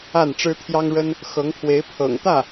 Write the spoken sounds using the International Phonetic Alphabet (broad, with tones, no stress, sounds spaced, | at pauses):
a˥˩ n ʈ͡ʂ ɻ̩˥ t̪ʰ j ɑ˥ ŋ ɻ ə˥ n | x ɤ˧˥ ŋ pʰ w e˧˥ ɪ̯ pʰ ɤ̰˨˩ ŋ t̪ ä˥˩